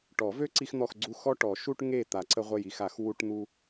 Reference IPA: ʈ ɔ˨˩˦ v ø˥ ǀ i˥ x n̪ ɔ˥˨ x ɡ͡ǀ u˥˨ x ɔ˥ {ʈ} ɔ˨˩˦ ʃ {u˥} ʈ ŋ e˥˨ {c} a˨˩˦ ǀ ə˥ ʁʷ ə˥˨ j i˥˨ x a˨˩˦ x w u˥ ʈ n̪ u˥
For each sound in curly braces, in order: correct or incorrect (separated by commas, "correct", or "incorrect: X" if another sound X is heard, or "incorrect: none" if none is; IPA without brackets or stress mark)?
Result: correct, correct, incorrect: t̪